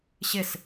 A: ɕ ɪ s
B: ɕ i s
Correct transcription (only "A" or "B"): A